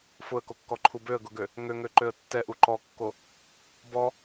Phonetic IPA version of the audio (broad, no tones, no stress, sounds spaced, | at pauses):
f ʊ ə̯ k o kː ɔ ǃʰ u b ø ə̯ ɡ ʊ ɡ ø | ŋ ø ŋ ø ǃ ø ə̯ tː ɛ ʔ u ǃ ɔ kː o | b ɔ